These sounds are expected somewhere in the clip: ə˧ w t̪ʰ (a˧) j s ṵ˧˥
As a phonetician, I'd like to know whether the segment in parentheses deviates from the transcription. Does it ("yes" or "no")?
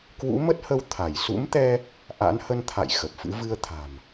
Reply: yes